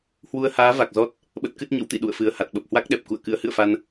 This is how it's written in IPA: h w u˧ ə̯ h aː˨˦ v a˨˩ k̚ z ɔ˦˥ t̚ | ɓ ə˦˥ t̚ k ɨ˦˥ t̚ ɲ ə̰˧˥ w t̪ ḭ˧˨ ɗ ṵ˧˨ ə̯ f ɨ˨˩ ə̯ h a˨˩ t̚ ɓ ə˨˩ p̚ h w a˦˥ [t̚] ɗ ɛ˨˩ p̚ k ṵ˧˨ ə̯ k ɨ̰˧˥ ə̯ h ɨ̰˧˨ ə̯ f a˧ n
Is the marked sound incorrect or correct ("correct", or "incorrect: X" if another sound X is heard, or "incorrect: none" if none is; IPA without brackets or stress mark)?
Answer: incorrect: k̚